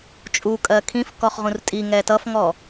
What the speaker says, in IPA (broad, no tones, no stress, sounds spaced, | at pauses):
t͡ʃʼ u kʼ ɜ kʰ ĩ f k ɔ χ ʁ ũ r tʼ i ŋ ɛ t ʌ f ŋ ɔ